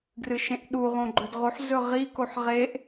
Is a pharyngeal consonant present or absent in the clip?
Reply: present